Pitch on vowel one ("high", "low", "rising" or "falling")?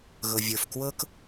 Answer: low